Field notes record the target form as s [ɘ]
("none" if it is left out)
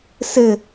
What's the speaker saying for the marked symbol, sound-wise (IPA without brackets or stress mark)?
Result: ɘ